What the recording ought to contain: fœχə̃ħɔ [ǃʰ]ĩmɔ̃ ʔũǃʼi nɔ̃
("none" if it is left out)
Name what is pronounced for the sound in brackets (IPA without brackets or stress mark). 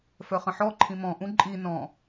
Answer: ǃʰ